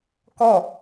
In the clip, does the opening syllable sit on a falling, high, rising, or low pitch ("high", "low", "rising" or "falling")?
falling